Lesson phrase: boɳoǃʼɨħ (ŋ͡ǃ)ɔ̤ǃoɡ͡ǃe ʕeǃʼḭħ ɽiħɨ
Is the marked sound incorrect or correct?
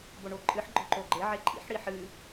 incorrect